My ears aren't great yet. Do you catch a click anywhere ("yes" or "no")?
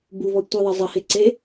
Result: yes